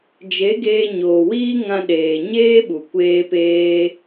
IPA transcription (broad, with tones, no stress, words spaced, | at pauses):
d͡ʒe˨˦ɡeː˧ɲoː˨wiː˦ ŋã˧ɗeː˨ɲeː˦ɓu˨ kʷeː˦peː˦